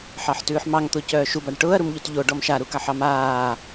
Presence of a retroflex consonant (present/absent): present